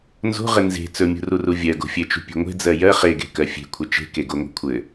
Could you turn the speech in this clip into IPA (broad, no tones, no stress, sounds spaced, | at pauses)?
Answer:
n z o̤ ʁ ɘ n z e̤ t͡s ɵ mʲ ṳ r u r u vʲ ɜ ɡ o̤ fʲ ɘ t͡ʃ ṳ pʲ e̤ ŋʷ e̤ d͡z ɜ j ɜ χ e ɡ e̤ k ɜ fʲ e̤ kʷʰ ɘ t͡ʃ e̤ k e ɡ o ŋʷ e̤ kʷʰ ɘ